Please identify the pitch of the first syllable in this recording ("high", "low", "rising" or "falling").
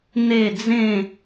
falling